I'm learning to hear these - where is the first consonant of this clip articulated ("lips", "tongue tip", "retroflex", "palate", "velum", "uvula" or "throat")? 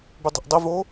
lips